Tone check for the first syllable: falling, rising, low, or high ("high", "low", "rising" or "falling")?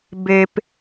low